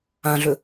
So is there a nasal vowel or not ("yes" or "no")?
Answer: yes